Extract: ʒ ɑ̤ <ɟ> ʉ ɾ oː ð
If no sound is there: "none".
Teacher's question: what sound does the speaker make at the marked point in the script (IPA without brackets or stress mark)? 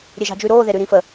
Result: d͡ʒ